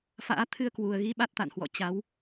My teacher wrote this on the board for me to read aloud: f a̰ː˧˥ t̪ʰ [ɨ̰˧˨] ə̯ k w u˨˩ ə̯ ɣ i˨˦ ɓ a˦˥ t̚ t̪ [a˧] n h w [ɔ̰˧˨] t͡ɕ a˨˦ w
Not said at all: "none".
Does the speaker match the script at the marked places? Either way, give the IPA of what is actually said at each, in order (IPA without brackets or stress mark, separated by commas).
ɨ˧, a̰˧˨, ɔ̰˧˨